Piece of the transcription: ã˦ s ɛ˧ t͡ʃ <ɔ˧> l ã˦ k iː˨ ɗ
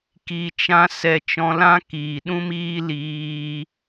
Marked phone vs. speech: incorrect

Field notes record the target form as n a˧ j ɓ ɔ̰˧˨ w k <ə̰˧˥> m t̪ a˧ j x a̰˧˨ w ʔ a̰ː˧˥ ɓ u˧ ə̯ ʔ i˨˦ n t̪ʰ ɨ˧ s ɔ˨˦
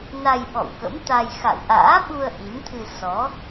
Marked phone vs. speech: correct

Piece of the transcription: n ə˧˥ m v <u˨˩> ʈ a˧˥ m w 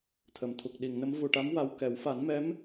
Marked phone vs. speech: correct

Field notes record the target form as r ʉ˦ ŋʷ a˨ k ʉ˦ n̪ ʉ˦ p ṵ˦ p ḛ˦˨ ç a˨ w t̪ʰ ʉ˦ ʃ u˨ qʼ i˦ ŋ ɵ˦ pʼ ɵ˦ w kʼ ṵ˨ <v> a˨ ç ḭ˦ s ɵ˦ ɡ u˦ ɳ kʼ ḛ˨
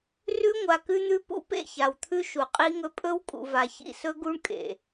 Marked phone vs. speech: correct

